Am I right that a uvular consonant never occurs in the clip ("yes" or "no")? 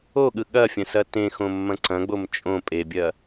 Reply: yes